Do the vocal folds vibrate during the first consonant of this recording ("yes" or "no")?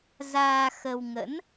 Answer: yes